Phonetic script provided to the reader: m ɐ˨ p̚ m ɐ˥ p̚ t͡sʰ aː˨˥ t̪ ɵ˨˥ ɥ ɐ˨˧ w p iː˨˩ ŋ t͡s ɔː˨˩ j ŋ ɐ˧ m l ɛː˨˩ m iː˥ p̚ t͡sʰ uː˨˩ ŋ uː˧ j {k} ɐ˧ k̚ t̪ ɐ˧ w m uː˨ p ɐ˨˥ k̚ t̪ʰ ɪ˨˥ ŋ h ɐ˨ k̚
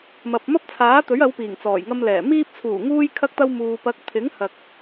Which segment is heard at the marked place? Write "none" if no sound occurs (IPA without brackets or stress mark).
kʰ